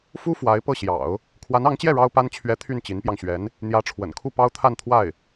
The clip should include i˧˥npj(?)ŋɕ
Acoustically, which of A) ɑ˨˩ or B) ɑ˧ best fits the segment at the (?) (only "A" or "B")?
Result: B